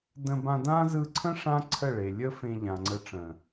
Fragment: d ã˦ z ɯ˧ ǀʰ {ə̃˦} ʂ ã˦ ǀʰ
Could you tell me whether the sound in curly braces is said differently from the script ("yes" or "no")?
no